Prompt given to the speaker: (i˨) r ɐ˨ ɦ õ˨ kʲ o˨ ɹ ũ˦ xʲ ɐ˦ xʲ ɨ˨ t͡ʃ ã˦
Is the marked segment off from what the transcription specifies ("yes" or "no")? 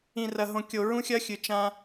yes